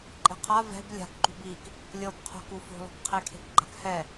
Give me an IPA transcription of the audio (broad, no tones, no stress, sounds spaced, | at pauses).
ǃʼ ɛ̤ qʰ a v ɛ̤ b lʲ a̤ k ǃ ṳ b i k | lʲ ɤ b qʰ o̤ k u f o̤ lˠ o̤ k qʰ e kʰ e̤ k ɡ͡ǃ a̤ k h ɛ